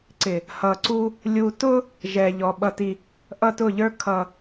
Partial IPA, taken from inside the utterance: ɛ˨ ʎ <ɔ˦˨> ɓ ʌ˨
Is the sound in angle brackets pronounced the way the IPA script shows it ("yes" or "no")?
no